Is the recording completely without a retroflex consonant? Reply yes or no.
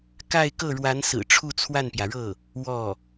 no